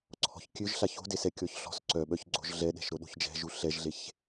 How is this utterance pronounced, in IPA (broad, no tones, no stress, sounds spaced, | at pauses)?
ǀʰ ɔ̤ ç kʲ ø ʒ ɬ a ç o̤ d e s ɛ kʲ ɔ ç ɬ ɔ̤ s ǀ œ ɓ œ ç ɡ͡ǀ o̤ ʒ ɮ ɛ ɗ ɛ̤ ʃ ɾ o ɗ o̤ ç d͡ʒ ɛ̤ ʒ u ɬ ɛ ʒ ɮ e ç